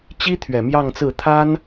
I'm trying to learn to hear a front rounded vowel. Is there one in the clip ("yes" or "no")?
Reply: no